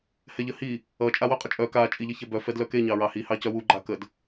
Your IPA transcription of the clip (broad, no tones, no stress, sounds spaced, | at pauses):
h ɛ ʎ ə h i | ʌ t͡ʃʼ a w œ qʼ ʌ t͡ʃʼ œ k a t͡ʃʼ i ʎ ʌ ç ɛ b œ f ɛ d l œ k e ɲ ɑ ɹ ɑ h i h ɑ c œ w u ɡ͡ǃ a k ə d